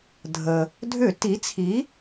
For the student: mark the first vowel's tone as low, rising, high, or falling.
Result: low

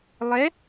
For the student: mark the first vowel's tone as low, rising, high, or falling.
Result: rising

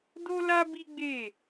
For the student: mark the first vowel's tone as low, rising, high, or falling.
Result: high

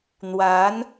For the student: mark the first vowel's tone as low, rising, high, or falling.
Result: rising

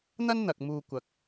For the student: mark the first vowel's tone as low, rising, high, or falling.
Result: high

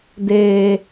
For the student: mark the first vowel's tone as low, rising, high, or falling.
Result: low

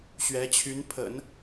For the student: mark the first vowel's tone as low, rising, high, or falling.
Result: rising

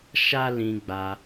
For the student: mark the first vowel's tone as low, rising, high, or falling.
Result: high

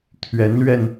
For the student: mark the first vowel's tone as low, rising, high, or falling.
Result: rising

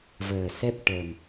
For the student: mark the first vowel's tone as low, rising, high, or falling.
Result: low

